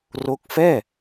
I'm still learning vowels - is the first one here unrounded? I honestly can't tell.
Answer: no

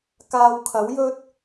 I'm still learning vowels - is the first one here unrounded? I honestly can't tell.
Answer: yes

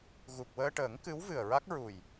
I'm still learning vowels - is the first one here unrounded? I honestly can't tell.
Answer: no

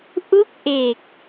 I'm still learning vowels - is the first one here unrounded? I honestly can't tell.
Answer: no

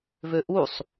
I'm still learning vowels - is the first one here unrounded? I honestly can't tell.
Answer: no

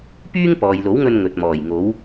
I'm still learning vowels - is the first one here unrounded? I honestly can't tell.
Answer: no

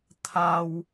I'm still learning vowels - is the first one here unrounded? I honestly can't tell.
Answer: yes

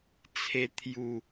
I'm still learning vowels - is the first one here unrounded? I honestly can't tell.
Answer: yes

